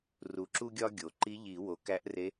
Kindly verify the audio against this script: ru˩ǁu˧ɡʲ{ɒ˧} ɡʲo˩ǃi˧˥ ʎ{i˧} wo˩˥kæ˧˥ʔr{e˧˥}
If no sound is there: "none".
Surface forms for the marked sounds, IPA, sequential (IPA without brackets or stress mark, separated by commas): ɒ˧, i˨˩˦, e˧˥